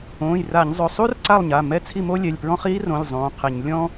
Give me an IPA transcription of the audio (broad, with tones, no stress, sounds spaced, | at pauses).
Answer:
õː˩˧˩ j r a˧˩˧ ɲ zˤ ʊ˩˧˩ sˤ u˥ r ǀ a˥˨ lˠ ɲ a˩˧˩ m ɛ˥˨ t͡sʰ i˥˨ m o˥ lʲ ɛ˩˧˩ lʲ p ɹ ɔ̃˥ χ iː˥ r õ˩˧˩ lʲ zˤ õː˩˧˩ qʰ e˧˩˧ ɲ lʲ ɔ̃˥